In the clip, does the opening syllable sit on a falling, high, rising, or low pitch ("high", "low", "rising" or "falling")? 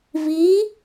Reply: rising